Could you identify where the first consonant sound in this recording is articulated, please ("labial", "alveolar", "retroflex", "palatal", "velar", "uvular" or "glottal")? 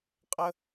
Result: uvular